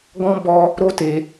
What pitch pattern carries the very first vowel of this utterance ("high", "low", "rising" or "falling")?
high